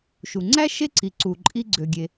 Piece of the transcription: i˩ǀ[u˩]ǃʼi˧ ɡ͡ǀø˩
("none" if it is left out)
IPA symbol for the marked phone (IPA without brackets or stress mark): u˩